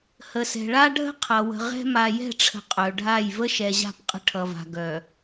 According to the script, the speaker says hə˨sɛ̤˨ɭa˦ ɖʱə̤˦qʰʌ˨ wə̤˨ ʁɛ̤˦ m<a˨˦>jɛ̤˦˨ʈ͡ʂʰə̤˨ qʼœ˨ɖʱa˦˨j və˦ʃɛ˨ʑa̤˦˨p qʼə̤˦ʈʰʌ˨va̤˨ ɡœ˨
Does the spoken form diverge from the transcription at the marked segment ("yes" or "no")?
yes